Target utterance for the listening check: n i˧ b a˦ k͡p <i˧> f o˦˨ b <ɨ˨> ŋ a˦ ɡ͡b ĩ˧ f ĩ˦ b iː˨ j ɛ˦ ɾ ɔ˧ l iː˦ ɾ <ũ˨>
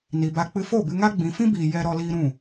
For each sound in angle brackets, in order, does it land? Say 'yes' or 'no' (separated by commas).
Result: no, no, no